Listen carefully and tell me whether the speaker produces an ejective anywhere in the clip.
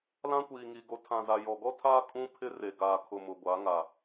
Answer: yes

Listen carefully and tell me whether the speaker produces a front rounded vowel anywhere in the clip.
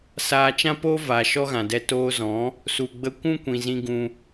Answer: no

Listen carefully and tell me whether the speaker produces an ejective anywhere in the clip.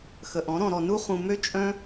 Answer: yes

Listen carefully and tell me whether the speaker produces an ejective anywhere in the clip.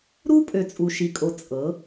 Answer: yes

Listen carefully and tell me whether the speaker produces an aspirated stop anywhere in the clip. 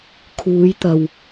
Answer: yes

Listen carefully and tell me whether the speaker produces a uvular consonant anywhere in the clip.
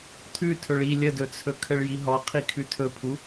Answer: yes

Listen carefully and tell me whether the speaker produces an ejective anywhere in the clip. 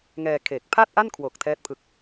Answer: no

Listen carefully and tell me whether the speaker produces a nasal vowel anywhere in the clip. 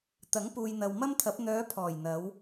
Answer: no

